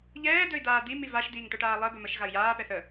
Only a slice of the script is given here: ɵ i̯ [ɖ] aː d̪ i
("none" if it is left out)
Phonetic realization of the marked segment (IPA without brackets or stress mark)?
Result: d̪